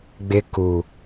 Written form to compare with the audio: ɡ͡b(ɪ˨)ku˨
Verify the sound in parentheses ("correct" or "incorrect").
incorrect